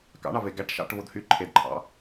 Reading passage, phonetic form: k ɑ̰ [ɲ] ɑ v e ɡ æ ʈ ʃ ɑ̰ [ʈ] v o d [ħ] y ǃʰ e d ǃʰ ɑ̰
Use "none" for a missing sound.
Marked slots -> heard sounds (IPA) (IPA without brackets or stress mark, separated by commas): ɳ, ʈ, h